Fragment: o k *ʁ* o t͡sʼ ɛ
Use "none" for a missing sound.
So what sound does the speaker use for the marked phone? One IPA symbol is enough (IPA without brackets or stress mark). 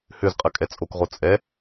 ʁ